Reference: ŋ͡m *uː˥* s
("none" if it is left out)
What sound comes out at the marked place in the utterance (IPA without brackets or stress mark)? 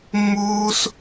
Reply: uː˥